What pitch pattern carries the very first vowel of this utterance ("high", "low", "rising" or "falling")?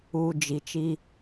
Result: low